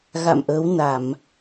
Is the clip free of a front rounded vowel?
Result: yes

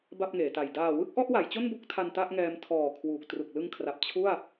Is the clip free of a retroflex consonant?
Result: yes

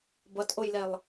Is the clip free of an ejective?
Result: yes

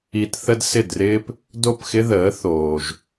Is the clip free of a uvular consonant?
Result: yes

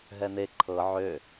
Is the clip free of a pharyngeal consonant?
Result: no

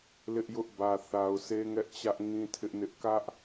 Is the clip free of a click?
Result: yes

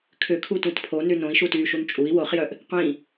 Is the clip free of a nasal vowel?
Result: no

